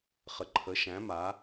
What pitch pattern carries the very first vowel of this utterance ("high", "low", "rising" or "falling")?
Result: low